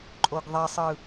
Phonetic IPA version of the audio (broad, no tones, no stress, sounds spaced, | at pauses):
ǃʼ o ɡ ðˤ i sˤ ɯ